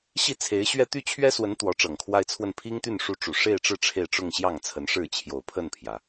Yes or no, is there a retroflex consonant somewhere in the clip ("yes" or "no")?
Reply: yes